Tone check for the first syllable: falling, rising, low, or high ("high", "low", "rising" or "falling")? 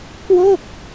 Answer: falling